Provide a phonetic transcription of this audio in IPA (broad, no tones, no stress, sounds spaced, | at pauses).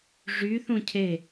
ʐ y θ ũ cʰ e